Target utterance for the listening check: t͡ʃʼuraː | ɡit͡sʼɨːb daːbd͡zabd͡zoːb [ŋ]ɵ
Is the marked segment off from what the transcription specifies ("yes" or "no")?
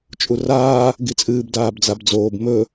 yes